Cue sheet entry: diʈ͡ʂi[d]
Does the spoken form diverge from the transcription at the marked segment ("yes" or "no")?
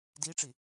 yes